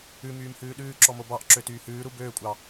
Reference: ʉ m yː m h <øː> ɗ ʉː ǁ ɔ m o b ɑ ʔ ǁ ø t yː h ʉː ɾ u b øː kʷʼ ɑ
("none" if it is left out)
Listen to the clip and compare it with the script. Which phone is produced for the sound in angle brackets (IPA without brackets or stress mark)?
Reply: ʉː